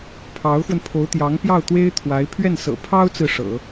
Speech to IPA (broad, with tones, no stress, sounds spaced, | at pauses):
pʰ ɑ˧˥ ʊ̯ x w ə˧ n pʰ o˧˥ ʊ̯ t̪ j ɑ˧˥ ŋ p j ɑ˥˩ ʊ̯ t̪ w e˥ ɪ̯ t̪ʰ w a˧˥ ɪ̯ pʰ ɥ ɛ˥˩ n s ɤ̰˨˩ pʰ ɑ˥ ʊ̯ t͡s ɹ̩˨ ʂ ɤ̰˨˩˦